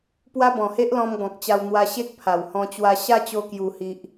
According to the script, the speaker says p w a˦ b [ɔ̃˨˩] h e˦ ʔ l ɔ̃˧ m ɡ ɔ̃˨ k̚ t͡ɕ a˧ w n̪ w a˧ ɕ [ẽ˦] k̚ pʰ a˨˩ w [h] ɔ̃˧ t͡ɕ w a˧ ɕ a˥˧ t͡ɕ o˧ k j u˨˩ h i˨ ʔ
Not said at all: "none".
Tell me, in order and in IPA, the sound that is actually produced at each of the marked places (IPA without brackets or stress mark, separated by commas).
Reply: ɔ̃˨˩, e˦, h